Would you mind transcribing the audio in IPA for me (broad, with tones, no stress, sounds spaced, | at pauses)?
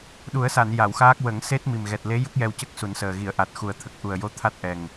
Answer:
ɗ u˨˩˦ ə̯ s a˨˩˨ n j a˨˩˨ w x aː˦˥ k̚ w ə˨˩˦ ŋ s e˦˥ t̚ m i˨˩ m ɣ ɛ˨˩ t̚ l e˧˥ j ə˦˥ k̚ j ɛ˧ w c ə˦˥ k̚ s u˨˩˦ n s əː˨˩ ɣ i˨˩˨ ə̯ ʔ a˨˩ t̚ x u˨˩ ə̯ t̪ʰ ə˨˩ k̚ ʔ u˨˩ ə̯ j o˧˥ t̪ʰ a˦˥ t̚ ʔ ɛ˨˩ ŋ